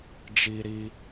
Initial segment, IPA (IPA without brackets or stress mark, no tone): d͡ʒ